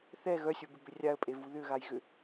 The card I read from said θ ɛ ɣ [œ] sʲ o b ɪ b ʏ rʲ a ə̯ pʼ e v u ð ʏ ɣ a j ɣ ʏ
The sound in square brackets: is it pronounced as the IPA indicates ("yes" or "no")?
yes